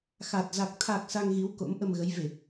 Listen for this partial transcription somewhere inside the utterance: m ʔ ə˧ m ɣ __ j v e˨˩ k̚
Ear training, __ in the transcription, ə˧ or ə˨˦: ə˨˦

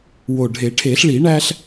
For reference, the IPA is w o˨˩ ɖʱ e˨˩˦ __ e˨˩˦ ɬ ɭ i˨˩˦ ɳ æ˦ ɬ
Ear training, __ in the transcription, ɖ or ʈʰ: ʈʰ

